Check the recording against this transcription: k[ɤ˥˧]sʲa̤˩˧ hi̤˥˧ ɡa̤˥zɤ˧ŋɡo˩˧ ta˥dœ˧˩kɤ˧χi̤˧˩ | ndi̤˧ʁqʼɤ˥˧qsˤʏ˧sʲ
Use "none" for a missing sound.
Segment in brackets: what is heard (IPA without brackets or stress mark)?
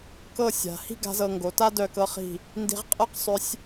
ɤ˥˧